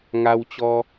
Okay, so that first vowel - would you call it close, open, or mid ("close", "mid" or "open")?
open